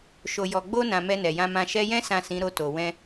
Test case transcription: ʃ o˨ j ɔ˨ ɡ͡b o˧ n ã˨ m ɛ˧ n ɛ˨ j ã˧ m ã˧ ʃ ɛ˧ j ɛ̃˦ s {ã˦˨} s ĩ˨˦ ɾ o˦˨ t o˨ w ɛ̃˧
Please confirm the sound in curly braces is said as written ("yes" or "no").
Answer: yes